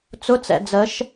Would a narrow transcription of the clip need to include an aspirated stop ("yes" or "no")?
no